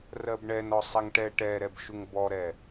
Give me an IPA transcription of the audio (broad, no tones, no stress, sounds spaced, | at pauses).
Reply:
r ɜ b ɳ ɛ n ɔ sˤ ɛ ŋ ʈ ɛ ʈ ɛ ɾ ɛ b ʃ u ŋ b ɔ ɾ ɛ